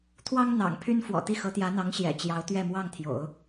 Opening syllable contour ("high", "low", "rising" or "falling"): high